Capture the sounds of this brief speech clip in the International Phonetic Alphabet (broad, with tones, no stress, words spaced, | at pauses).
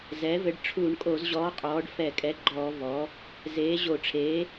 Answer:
zɛ˩˥ vɘ˩˥ɖʈ͡ʂʰuː˧˩˧ɳkʼo˧˩˧zʑɔː˩˥ qʼɔː˩˥ɖfɛ˧˩˧kʼɛ˩˥ɡ͡ǃɔː˧˩˧ vɔ˩˥ | zeː˩˥ʑo˧˩˧ ʈ͡ʂʰeː˩˥